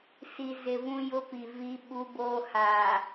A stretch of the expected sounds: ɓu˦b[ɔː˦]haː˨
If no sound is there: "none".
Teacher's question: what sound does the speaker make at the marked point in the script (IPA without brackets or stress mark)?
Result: oː˦